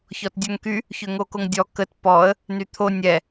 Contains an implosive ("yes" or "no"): no